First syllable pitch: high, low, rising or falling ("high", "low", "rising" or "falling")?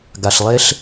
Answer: low